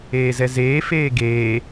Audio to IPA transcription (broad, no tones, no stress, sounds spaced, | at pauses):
eː z ɛ z eː f eː ɡ eː